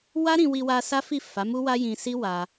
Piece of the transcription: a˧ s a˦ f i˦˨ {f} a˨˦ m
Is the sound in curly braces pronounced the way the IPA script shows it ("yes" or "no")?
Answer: yes